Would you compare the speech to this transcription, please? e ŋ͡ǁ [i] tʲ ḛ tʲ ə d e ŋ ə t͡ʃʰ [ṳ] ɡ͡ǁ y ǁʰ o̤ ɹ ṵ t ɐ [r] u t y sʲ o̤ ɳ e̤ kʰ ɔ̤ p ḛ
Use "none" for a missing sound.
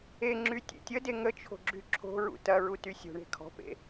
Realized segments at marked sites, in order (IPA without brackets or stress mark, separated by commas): y, o̤, ɹ